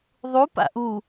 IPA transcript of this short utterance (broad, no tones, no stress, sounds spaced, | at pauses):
ðˤ u p a̰ ʔ u